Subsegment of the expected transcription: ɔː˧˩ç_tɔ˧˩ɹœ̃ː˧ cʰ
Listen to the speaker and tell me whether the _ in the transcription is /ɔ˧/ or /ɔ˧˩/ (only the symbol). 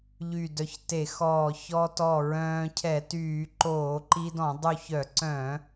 ɔ˧